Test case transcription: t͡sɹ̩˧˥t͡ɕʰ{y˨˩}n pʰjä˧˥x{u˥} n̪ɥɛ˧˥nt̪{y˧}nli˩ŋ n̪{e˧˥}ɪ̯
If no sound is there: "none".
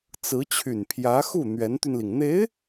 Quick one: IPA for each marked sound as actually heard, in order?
y˨˩, u˥˩, y˧, e˧˥

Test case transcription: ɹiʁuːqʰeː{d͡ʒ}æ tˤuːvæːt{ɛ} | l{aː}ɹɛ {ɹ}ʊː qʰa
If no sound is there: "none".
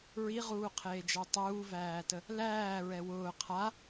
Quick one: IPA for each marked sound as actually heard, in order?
d͡ʒ, ə, æː, w

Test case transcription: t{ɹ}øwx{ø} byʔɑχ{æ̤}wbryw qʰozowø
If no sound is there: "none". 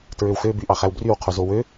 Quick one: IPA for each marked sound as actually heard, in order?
ɹ, ø, æ

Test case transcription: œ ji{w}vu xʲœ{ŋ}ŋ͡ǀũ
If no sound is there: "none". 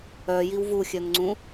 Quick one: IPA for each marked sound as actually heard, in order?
w, ŋ

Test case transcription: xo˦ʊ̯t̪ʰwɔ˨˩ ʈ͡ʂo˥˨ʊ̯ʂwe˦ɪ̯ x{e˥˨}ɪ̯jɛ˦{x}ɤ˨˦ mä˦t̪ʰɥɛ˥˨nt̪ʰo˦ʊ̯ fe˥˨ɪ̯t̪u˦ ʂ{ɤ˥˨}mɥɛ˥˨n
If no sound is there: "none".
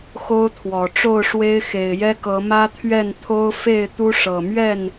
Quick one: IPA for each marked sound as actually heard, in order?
e˨˩, k, ɤ˨˩

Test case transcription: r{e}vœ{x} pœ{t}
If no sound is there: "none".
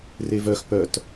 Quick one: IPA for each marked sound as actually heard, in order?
e, x, t

